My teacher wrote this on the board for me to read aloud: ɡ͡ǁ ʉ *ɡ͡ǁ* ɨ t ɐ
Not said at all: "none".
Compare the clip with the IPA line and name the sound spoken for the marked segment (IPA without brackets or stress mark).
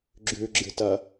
ɡ͡ǁ